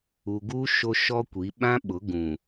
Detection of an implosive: present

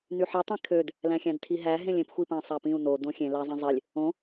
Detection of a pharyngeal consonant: present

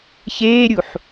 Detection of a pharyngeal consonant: present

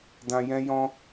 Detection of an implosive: absent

